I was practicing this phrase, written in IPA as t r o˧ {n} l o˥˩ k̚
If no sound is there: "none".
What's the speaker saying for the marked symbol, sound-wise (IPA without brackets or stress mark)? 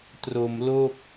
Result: m